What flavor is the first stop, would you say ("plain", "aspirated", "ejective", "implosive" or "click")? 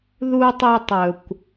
plain